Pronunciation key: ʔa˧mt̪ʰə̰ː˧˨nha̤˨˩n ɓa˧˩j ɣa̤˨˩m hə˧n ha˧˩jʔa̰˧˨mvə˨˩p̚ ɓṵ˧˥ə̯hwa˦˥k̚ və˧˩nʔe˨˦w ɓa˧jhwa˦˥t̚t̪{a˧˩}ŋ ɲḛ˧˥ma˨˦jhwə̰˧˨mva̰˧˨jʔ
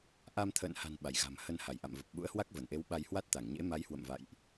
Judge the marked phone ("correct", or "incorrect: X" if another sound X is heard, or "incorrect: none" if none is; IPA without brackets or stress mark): correct